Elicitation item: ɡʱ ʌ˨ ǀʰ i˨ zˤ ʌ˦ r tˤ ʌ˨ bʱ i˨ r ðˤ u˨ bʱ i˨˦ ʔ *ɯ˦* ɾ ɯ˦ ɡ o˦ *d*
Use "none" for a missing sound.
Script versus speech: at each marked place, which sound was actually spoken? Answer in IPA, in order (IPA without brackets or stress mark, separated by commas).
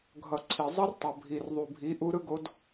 u˦, d